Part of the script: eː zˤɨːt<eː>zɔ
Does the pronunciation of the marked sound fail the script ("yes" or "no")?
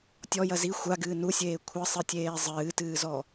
yes